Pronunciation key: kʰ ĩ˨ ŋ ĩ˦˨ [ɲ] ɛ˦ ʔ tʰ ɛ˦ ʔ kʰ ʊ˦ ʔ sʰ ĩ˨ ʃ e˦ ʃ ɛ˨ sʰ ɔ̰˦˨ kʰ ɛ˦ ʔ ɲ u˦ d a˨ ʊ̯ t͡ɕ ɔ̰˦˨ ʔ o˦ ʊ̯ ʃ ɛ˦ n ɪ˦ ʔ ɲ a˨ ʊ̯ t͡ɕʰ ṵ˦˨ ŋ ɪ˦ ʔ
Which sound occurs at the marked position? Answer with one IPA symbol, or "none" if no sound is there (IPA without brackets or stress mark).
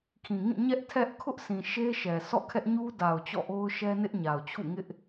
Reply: ɲ